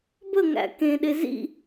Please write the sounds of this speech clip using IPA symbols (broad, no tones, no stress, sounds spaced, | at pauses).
b ə ŋ æ̰ k ẽ ɗ e z ḭ